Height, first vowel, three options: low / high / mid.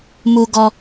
high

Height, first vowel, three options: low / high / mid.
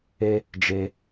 mid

